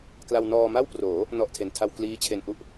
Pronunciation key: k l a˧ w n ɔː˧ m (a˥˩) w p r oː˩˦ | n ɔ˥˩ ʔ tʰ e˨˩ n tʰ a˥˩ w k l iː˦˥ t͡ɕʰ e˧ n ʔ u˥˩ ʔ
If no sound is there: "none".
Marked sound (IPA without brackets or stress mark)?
a˥˩